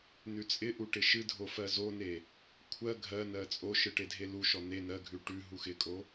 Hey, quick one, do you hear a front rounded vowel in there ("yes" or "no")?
no